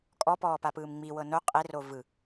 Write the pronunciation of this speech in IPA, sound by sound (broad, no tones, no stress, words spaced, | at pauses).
kʼɔpɔːpapɯːm ŋ͡miwɤ no qʼero vɯ